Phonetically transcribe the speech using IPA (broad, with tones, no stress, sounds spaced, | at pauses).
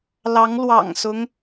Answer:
l ɑ˧˥ ŋ l w ɑ̰˨˩ ŋ s ʊ˦ ŋ